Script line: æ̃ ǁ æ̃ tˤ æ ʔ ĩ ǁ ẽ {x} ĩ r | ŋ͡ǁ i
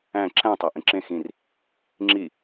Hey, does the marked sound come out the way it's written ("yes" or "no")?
yes